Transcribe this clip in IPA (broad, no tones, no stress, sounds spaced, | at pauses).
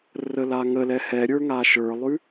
r ə l a ŋ ə l ɛ h ɛ ɾʲ ə˞ ŋ a ʃ ə˞ lˠ ʉ